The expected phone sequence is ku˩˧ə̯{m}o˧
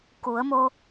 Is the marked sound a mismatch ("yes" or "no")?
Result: no